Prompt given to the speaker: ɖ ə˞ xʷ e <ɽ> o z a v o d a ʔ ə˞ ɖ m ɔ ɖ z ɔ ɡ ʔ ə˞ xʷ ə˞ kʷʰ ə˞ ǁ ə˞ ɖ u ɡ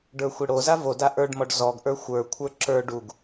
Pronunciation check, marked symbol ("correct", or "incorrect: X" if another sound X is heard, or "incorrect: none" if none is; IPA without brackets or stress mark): correct